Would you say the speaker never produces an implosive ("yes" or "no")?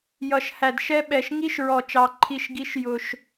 no